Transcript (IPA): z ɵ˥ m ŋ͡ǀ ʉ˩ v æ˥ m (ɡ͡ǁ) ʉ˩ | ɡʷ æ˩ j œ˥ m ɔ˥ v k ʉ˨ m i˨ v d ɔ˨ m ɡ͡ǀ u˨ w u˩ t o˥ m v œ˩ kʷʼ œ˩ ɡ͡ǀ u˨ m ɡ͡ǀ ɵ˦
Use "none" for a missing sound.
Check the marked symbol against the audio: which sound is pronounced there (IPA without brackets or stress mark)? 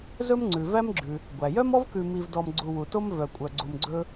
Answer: ɡ͡ǁ